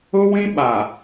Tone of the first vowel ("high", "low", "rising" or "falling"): high